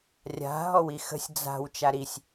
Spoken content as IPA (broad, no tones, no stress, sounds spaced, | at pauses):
rʲ a̤ ɦ ɔ w i x ə̤ sʲ d͡z a̤ w t͡ʃ a ɾ i sʲ